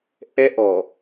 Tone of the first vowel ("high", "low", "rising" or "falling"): high